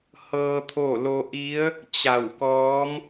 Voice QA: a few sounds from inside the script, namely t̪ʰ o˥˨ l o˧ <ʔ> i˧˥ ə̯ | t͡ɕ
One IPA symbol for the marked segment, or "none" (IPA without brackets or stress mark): ʔ